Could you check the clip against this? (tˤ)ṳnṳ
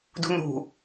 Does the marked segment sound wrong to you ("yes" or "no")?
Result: yes